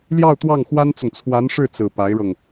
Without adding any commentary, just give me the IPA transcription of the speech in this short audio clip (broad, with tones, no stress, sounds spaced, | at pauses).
l j ɑ˥˧ ʊ̯ t̪ w ɑ˥˩ ŋ x w a˥ n t͡s ʊ˨ ŋ t͡sʰ w a˧˥ n ʂ ɻ̩˥˩ t͡s ɹ̩˨˩ p a˧˥ ɪ̯ ɻ ɤ˧ ŋ